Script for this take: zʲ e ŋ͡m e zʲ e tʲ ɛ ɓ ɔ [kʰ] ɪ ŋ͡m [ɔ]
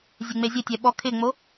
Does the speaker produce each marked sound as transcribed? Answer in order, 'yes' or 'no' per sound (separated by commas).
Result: yes, no